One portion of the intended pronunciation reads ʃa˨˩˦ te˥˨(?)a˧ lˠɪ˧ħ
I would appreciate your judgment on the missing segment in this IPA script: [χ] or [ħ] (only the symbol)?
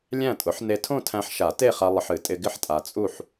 χ